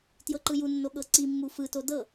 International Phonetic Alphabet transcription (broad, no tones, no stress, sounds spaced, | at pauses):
t j ɤ ǃ ɯ j u nː o ɠ ɤ ǀ i mː u f ɯ t o d ɤ